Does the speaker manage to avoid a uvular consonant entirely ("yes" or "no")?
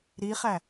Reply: no